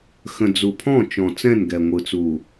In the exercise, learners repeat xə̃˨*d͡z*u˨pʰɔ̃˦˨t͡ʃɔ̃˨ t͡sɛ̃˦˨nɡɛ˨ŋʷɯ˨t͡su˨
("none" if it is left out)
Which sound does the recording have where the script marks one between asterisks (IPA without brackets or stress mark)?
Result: d͡z